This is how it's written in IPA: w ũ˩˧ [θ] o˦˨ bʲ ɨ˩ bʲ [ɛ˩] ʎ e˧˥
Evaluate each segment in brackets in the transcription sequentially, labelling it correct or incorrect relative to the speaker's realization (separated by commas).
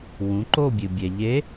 incorrect, correct